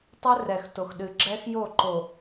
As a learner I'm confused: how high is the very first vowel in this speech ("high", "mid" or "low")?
mid